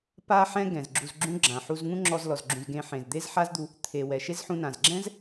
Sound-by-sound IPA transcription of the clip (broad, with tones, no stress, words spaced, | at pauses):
pa˧ħɛ̃˧ ɡɛ̃˩zɡ͡ǁu˧zɡ͡ǁũ˥ɡ͡ǁã˩ ħu˧zŋũ˥ŋ͡ǁɔ˧z lɔ˩zɡ͡ǁũ˩zɡẽ˧ ħẽ˩zd̪e˥z ħa˥zd̪u˧ | t̪ʰe˩ wɛ˩ʃe˥zħũ˧nã˩z ɡ͡ǁɛ̃˥z